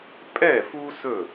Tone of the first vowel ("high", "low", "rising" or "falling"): falling